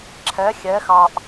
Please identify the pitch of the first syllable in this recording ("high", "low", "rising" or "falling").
rising